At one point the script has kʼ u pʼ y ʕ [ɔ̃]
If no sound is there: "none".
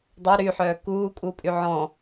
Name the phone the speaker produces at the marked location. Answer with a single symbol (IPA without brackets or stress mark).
ɔ̃